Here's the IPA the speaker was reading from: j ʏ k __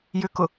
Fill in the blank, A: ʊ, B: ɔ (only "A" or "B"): A